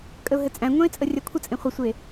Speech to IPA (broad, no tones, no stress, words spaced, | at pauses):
kʼəʊ̯ɦɘt͡sʼæ̃ŋʷæ̃ɪ̯ t͡sʼərʲakʷʰət͡sʼẽ χʷəsʷe